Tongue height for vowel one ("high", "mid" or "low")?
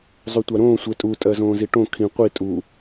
high